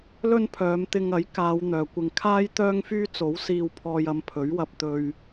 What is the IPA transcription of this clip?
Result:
l ɵ˥ n pʰ œː˨˧ m t̪ ɪ˧ ŋ ɐ˨˥ j k aː˨˧ w n̪ œː˨ kʷ ɪ˧ ŋ kʰ aː˥ j t̪ œː˥ ŋ f yː˥ t͡s o˨˥ w s iː˧ w pʰ ɔː˧ j ɐ˧ m pʰ ɵ˨˥ ɥ w ɐ˧ p̚ t̪ ɵ˧ ɥ

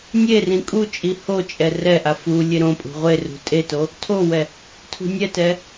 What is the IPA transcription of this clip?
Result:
nʲ e r ĩ kʼ u t͡ʃʼ i h o t͡ʃʼ ɛ r ɛ ʔ a f u lʲ e ɾ õ pʼ ṳ ʁʷ e r ṳ tʼ e t o | tʰ o w ɛ | tʰ ṳ nʲ ɛ t ɛ

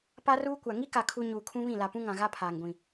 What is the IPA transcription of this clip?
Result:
p a˦ r uː˦ kʷ a˨ ŋ i˦ k a˨ kʰ u˨ ɲ uː˨ kʰ ũ˦ β ĩ˦˨ l a˨ p ũ˦ ŋ ã˨ ɣ a˦ pʰ aː˨ ŋ ɡʷ ĩ˨

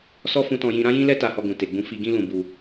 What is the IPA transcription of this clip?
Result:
s ɔ˦ f ũ˧ t ɔ̃˧ j ĩ˧ ɾ ã˦ j ĩ˦ l ɛ˦ t a˧ h ɔ˧ ɡ ũ˨ t e˨ ɡ͡b ũ˧ f i˧ ɡ ĩ˦ l ũ˧ b u˧

